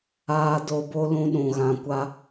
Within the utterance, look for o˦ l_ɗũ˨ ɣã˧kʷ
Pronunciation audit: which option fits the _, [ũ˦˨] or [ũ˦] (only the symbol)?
ũ˦